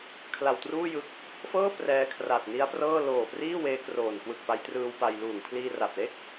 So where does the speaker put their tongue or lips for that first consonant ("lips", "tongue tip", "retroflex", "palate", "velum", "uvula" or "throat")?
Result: velum